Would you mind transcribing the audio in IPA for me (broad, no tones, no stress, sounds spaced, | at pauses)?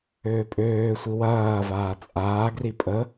øː pʼ øː sʷ i w ɐː v aː t͡sʼ aː ɡ r i pʼ ə